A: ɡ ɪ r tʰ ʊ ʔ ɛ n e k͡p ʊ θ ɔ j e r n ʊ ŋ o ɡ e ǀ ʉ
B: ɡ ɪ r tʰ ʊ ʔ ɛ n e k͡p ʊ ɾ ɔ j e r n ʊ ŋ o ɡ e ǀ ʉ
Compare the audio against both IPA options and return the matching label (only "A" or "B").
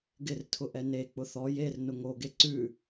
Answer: A